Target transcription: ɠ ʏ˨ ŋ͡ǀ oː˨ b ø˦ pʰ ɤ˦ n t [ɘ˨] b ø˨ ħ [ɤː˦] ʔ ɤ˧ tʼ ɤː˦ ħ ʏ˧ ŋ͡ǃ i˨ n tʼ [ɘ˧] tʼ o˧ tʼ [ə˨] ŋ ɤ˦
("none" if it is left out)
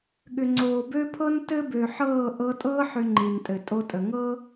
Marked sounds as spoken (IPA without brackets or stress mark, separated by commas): ɘ˦, ɤː˦˨, ɘ˨, ə˨